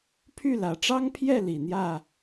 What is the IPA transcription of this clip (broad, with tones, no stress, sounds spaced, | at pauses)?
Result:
pʰ y˥˩ l ä˨˩ ʈ͡ʂ ɑ˥ ŋ pʰ j ɛ˥˩ l i˨˩ n̪ j ä˥˩